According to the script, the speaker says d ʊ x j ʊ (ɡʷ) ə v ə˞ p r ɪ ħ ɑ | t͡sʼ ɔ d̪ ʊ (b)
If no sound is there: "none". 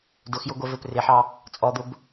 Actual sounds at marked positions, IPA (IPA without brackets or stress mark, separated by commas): ɡʷ, b